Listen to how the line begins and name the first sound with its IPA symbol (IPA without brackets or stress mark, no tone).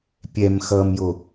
pʲ